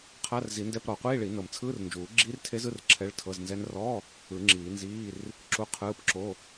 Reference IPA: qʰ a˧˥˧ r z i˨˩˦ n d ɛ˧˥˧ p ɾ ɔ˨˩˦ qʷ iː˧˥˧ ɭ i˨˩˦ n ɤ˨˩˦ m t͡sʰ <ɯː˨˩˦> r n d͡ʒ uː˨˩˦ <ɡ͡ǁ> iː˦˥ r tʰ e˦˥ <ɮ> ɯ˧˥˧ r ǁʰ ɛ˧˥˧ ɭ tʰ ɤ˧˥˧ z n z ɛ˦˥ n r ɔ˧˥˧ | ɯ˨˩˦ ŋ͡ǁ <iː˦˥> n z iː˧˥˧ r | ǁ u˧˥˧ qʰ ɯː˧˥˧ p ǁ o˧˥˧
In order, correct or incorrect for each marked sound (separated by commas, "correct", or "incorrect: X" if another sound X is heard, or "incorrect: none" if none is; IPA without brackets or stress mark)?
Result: incorrect: ɯː˧˥˧, correct, incorrect: z, incorrect: iː˨˩˦